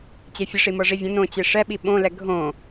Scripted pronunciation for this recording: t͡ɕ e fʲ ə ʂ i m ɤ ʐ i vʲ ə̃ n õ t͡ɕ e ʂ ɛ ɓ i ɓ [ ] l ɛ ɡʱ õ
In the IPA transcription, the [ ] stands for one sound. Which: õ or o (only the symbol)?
õ